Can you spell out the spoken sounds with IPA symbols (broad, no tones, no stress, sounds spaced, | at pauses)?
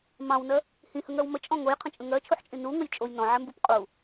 m ɑ̃ w n ɜ | h ĩ h ə ŋ ɜ w m ə t͡ʃʼ ɔ̃ ŋ o j qʰ ə̃ t͡ʃʼ ə̃ ŋ ɜ t͡ʃʰ u ħ t͡ʃʼ ĩ n u ŋ ə j t͡ʃʼ o j n ɔ̃ ʕ ɛ m b u p qʼ u